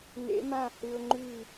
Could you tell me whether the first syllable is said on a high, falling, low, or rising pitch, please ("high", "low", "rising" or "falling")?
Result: rising